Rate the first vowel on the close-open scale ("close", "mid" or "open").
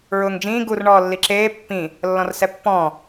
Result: close